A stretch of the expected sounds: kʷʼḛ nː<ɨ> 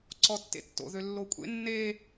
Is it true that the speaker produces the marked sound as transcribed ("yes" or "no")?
no